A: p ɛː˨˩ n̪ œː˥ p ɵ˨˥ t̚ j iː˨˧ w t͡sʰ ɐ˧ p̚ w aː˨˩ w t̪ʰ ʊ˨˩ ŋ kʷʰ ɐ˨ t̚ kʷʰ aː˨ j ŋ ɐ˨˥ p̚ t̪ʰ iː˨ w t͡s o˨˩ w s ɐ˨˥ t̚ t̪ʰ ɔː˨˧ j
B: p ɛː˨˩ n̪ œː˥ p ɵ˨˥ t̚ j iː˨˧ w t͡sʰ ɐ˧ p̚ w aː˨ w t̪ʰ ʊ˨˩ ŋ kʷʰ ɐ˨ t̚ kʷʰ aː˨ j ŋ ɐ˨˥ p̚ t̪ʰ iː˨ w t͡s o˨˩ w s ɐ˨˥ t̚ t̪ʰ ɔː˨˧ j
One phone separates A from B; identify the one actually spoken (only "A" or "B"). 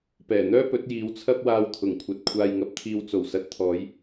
B